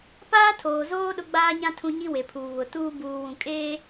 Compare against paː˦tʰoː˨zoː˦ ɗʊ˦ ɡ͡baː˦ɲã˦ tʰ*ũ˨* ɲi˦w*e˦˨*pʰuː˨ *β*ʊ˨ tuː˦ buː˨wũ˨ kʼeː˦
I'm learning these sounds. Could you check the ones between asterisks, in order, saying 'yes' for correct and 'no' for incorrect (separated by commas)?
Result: no, no, yes